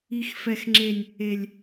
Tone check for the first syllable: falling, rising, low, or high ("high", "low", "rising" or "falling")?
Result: high